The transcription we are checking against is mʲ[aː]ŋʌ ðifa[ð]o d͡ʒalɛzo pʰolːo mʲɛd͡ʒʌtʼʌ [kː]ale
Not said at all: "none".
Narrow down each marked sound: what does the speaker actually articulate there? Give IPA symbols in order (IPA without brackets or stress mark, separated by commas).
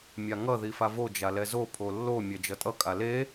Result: a, v, kʼ